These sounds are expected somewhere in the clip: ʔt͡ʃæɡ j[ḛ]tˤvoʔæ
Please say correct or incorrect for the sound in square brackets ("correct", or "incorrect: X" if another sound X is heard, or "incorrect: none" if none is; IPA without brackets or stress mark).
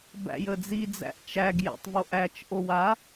incorrect: ɛ̰